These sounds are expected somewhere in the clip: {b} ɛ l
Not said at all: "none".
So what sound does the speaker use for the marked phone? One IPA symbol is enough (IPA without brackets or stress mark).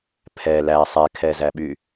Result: pʰ